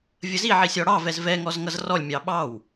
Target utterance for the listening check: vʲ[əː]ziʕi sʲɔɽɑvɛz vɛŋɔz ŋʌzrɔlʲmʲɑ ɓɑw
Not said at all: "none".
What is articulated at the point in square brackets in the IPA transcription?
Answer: ə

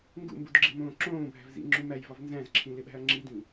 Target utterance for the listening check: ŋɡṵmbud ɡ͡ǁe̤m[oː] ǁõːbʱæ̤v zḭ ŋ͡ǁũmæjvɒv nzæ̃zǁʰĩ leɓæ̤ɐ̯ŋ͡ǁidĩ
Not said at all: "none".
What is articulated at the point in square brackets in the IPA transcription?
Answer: õː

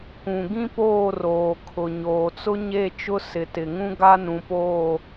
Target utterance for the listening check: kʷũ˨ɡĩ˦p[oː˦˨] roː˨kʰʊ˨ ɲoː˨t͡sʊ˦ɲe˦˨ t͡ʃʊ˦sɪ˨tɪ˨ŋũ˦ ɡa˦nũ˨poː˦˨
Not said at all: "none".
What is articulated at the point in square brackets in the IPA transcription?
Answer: oː˦˨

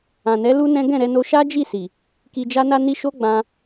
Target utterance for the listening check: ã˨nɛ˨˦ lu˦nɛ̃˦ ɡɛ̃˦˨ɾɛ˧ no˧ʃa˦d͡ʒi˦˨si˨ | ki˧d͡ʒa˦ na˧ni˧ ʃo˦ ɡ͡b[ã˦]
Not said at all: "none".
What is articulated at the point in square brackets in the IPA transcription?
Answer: ã˧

